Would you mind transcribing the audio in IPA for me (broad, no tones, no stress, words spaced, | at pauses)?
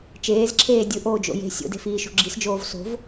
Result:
t͡ʃeːzǁʰeː dʲɯʔoːd͡ʒo̰ je̤ sʲo̰de̤fiːʃo̤ ɡ͡ǁisd͡ʒoːv so̤v